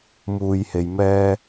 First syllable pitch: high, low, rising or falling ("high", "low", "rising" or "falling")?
low